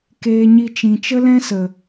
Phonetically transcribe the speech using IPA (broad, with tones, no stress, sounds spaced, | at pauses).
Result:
k eː˧ ɲ i˧ t͡ʃ ĩ˨ t͡ʃ ə˦ l ɛ̃˦ s ə˨